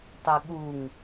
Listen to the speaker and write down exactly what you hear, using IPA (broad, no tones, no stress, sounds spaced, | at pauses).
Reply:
tˤ ɨ ɠ u ŋ